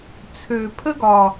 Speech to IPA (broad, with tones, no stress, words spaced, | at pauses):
t͡sʰø˨˩ pʰə˥ɡɒ˨˩